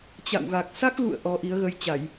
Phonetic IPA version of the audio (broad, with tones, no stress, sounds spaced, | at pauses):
t͡ɕ a̰˧˨ w ɣ a˨˩ k̚ s a˦˥ k̚ ɣ ṵ˧˨ ə̯ ʔ ɔ˨˦ ʔ i˨˦ ə̯ ɣ ə˧ j t͡ɕ a˧˩˨ j